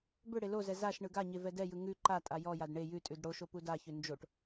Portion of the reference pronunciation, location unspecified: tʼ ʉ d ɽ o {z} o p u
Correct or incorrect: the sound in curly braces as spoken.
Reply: incorrect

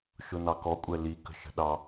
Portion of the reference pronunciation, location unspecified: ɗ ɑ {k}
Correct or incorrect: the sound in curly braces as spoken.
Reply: incorrect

